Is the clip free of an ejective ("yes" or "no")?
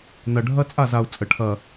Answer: no